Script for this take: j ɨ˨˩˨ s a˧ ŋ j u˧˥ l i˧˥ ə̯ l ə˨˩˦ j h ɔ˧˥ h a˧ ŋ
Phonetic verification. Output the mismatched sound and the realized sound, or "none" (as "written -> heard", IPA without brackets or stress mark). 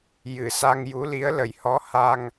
none